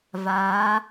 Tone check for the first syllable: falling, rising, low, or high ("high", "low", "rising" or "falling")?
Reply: rising